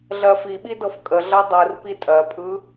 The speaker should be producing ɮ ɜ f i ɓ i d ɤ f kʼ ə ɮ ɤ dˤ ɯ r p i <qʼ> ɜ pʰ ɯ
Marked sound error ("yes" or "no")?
yes